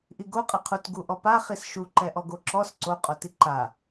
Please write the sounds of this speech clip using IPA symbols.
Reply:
ʔ i ɡ o qʼ ɛ qʰ u t ɡ u ʔ ɔ p a χ i s ʃ u ǃ ɛ ʔ ɔ ɡ o ǁ ɔ s ǀ o qʼ o t i ǃ a

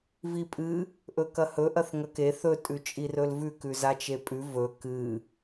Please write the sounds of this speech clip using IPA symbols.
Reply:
v i pʼ ɨ | ʔ ɵ k ɐ h ɵ ʔ ɐ θ ŋ ɐ k e θ ɵ tʼ ʉ t͡ʃʼ i r ɵ l v ʉ k ʉ z a t͡ʃ e pʼ ʉ v ɵ k ɨ

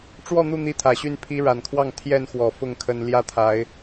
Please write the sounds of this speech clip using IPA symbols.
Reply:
ʈ͡ʂ w ɔ˥˨ n̪ u˥˨ n̪ i˦ t̪ʰ ä˨˩ ɕ y˥˨ n pʰ i˦ ɻ a˨˩ n kʰ w ɑ˥˨ ŋ t̪ʰ j ɛ˥˨ n x w ɔ˨˩ f ʊ˥˨ ŋ kʰ ə˦ n l j ä˦ t̪ʰ a˨˦ ɪ̯

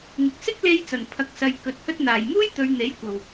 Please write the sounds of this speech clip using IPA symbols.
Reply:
ŋ ɪ˨ k̚ s ɪ˥ k̚ l e˧ j t͡s ɐ˨˩ n pʰ ɐ˨ k̚ s ɐ˨ j k ɵ˨ t̚ h ɵ˧ t̚ n̪ aː˨˩ j m uː˥ j t̪ ɵ˨˧ ɥ n̪ e˨˥ j kʷ ɐ˨ w

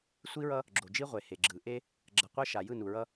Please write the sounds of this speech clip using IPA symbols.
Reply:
sʷ i˦ ɹ ʌ˦ | ɡ͡ǁ o˨ d͡ʒ i˦ ʁʷ e˨ h e˨ ɡ͡ǁ ɯ˨ ʔ e˦ | ɡ͡ǁ ʌ˨ qʷ ɛ˦ ʃ a˨ j ɯ˦˨ n u˨ ɹ ʌ˦

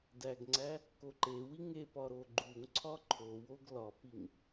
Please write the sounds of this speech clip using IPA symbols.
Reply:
d æ ɡ ŋ͡ǀ æ | k o ǃ e w i ŋ e p ɒ ɾ o ɡ͡ǃ u ŋ ǀʰ ɒ ǃʰ o w o ɡ l ɒ p i ŋ

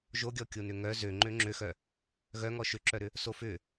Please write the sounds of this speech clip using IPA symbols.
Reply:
ʒ o ɡʲ ɔ kʲ o n ʏ ŋ œ z ø ŋ͡ǃ ø ŋ͡ǁ ø x œ | ɣ œ ŋ ɔ ʃ ʏ ǁ œ ɾ ʏ | s o f ʏ

